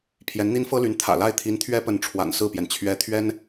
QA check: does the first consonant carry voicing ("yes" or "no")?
no